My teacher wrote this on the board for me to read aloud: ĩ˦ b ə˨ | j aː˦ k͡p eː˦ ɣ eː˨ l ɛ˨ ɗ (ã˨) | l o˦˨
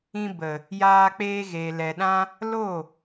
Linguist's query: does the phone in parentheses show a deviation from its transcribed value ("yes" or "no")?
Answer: yes